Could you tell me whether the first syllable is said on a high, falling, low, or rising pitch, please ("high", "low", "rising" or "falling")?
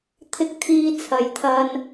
low